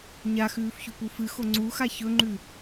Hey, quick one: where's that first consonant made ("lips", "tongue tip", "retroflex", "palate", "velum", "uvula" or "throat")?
palate